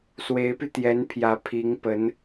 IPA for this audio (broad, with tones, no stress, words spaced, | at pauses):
swe˧˥ɪ̯py˧t̪jɛ˧˥npʰjä˧˥ pʰi˧˥ŋpə˧˥n